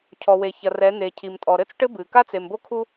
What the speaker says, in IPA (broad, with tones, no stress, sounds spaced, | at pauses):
cʰ ɔ˨ w e˨ ç ɐ˨ r ɛ˨˦ n̪ e˨ cʰ i˨ m tʼ ɔ˨ ɾ ɘ˦ t͡s ʈ ɘ˦ b ɨ˨ k a˦ t͡s e˨ m b o˦ kʰ u˦